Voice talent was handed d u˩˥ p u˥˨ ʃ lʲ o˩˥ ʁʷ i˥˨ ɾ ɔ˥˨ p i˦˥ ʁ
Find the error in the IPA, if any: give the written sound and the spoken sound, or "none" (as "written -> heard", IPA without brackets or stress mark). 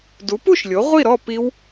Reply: ʁ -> w